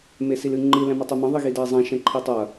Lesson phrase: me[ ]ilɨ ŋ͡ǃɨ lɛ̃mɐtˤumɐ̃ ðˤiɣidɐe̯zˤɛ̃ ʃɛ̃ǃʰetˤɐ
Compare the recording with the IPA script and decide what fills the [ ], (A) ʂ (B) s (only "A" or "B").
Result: B